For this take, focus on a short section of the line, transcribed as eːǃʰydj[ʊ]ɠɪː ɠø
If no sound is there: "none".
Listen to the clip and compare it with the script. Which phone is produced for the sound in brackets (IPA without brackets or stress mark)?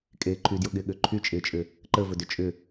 ʊ